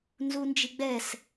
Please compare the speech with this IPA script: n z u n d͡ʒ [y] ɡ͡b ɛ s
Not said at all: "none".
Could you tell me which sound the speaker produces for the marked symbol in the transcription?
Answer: i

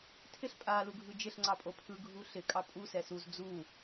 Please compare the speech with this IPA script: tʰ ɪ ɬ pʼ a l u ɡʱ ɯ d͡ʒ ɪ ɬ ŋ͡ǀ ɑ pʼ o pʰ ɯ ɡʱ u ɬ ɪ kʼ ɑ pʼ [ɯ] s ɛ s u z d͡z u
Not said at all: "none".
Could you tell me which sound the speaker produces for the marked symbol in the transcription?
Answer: u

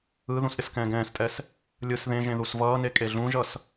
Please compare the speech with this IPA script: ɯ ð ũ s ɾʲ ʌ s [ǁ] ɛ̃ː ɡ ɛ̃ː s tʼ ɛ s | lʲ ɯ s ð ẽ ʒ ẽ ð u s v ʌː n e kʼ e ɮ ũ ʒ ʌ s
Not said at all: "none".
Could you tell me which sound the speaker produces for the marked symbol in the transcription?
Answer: k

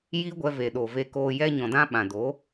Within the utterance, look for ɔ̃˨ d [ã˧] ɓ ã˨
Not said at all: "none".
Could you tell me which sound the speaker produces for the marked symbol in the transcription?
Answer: ã˧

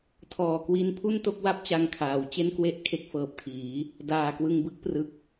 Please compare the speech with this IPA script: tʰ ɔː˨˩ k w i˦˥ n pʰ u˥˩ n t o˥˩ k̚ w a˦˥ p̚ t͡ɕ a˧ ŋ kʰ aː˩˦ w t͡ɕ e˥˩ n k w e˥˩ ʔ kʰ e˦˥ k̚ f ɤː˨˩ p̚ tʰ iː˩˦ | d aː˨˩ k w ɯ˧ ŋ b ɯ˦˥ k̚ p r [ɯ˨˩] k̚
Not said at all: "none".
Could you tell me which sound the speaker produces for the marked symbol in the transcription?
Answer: ɯ˨˩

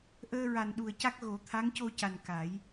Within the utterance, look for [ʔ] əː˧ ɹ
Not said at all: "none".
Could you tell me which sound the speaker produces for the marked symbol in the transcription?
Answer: ʔ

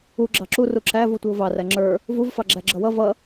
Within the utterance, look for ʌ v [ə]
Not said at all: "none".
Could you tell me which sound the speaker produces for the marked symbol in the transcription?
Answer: ʌ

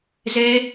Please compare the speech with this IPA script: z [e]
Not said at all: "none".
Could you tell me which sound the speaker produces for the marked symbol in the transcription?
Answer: e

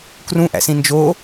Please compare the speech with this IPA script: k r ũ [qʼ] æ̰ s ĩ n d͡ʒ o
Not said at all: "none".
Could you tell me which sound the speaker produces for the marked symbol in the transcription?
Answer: ʔ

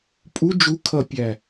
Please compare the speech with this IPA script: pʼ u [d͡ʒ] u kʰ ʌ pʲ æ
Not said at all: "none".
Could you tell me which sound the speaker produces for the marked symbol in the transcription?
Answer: d͡ʒ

